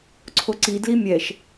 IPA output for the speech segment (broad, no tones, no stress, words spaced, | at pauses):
ǀʰoǀi dlimʲɛʃ